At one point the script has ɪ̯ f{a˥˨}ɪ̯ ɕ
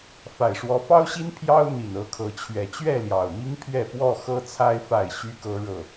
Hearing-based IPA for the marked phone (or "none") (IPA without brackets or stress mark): a˥˨